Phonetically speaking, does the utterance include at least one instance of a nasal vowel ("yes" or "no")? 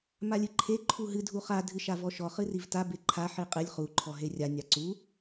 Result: no